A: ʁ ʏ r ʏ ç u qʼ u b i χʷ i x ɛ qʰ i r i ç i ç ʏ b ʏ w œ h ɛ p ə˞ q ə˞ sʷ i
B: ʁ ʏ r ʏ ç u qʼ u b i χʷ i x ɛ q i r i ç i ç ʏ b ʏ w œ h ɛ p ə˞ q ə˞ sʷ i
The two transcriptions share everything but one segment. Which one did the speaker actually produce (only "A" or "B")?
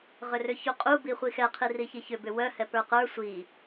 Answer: A